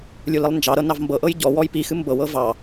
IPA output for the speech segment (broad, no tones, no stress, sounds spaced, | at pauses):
lʲ u l i lˠ n d͡ʒ ɑ ɾ ɤ n ɑ v m b ɤ ʔ ɤ j ɟ ɔ w ɔ j p i x ɨ m b ɤ w ɤ v ɑ